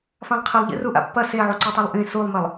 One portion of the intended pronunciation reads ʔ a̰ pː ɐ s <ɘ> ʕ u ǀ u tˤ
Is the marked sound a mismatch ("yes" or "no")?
yes